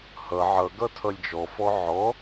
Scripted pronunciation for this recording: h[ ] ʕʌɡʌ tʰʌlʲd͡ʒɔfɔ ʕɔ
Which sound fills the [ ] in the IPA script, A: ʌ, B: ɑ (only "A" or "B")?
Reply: A